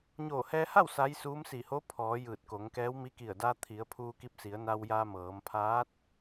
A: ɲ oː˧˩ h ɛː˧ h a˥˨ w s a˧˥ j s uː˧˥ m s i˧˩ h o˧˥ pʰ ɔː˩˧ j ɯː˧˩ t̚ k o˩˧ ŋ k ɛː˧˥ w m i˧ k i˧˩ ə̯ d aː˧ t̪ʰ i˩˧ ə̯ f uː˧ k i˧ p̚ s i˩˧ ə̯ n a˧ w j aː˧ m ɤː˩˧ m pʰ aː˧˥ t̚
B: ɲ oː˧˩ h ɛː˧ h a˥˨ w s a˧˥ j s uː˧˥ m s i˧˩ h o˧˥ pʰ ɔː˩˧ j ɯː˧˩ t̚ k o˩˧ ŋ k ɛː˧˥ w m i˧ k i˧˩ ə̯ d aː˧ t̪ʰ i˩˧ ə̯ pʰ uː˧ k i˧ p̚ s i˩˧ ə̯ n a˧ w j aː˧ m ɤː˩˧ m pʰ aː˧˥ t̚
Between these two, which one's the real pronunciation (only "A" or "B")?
B